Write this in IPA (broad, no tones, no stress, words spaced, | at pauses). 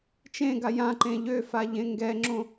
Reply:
t͡ʃẽɡa jã ǃẽʎøfa ʎẽŋɡɛŋ͡ǁõ